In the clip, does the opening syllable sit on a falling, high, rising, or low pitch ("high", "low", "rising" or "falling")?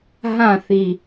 falling